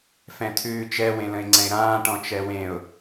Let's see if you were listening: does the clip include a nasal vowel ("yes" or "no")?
yes